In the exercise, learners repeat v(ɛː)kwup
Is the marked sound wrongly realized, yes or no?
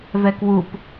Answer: yes